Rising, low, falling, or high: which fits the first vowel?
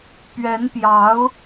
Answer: rising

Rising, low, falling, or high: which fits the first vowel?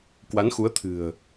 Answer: rising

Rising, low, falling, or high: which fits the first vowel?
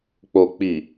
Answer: low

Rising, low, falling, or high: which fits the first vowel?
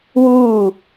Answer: falling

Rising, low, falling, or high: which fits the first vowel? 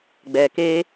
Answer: low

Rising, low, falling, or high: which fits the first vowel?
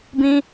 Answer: high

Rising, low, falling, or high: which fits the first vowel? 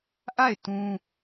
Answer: falling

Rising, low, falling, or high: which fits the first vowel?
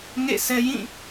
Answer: falling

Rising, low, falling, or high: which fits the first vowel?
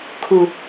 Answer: low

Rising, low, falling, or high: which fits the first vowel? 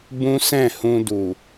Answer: high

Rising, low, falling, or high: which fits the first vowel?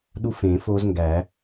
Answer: high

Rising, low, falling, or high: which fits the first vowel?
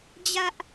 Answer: high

